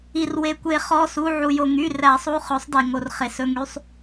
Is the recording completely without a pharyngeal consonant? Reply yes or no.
no